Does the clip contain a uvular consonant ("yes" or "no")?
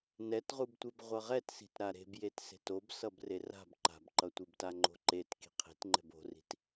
yes